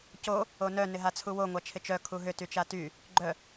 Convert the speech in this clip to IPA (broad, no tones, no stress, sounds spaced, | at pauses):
c o | o n œ n ɪ ɦ a t͡sʰ u w o ŋʷ a t͡ʃʰ ɪ t͡ʃ œ kʰ u ɦ ʏ t y t͡ʃ a t y | ɡ͡ǃ œ